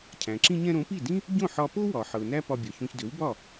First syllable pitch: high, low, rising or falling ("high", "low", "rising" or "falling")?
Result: low